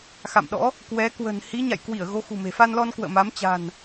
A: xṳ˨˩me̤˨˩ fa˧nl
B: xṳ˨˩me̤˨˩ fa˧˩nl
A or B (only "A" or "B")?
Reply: A